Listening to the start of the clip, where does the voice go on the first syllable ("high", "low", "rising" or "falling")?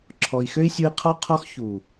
low